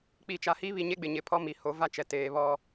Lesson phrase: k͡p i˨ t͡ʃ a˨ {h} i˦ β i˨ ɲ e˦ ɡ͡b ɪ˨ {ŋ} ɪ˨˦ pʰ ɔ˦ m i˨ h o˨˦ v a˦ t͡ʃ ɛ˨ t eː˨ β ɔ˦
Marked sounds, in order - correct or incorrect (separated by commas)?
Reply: correct, incorrect